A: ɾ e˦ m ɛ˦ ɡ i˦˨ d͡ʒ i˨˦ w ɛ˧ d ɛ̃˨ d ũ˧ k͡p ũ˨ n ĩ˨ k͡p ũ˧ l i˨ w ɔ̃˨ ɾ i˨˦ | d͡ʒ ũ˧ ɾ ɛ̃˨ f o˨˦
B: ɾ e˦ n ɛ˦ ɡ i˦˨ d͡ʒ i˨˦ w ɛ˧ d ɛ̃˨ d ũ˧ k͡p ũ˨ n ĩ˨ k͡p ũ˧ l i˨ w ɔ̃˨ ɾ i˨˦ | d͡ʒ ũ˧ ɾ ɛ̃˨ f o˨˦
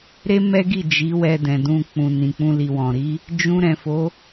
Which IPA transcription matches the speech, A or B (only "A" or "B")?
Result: A